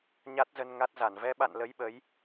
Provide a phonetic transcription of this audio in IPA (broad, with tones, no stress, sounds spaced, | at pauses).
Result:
ɲ a˦˥ t̚ z ə˧ n ŋ a˦˥ t̚ z a˧˩ n v ɛ˨˦ ɓ a̰˧˨ n l ə˨˦ j ɓ ə˨˦ j